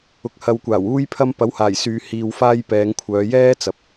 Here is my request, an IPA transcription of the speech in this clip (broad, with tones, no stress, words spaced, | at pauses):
ʊ˨k̚hɐ˨wkʷaː˨˩w uː˥jpʰɐ˥m pɐ˨˥whaː˨˩jsyː˨ hiː˨wfaː˧j pɛː˨˧ŋkʷʰœː˨˧ jɛː˥t͡sɐ˨˥p̚